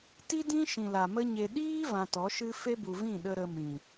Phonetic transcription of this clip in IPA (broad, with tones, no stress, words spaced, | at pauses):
ti˦dĩ˦ ʃĩ˨la˨mə˦ɲe˧ ɗiː˦ vã˧tɔ˨˦ʃɨ˦ fe˦bu˨vĩ˦˨ ɗə˧ ɾə˧mĩ˨